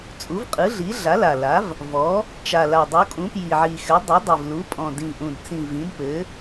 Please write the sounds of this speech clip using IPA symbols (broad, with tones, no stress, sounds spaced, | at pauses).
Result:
t͡sʼ u˩˥ v qʼ ɯ˩˥ ɮ i˩˥ ɮ a˩˥ l a˨˩ l a˩˥ v | v ɔ˩˥ | t͡ʃ a˨˩ l a˨˩ dˤ u˩˥ kʼ ũ˩˥ p j i˨˩ ʕ i˨˩ x ɘ˩˥ dˤ ʏ˩˥ dˤ i˨˩ v l u˩˥ pʼ ɔ̃˨˩ d ĩ˨˩ ʔ ũ˨˩ d t͡s ĩ˨˩ v ĩ˩˥ d p ɘ˩˥